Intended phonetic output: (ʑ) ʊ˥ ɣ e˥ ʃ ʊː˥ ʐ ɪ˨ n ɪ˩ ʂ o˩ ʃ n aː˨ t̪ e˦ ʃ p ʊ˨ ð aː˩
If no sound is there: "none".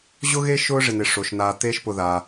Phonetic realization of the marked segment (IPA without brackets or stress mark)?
ʑ